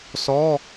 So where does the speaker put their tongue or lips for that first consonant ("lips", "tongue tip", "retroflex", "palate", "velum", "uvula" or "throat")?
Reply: tongue tip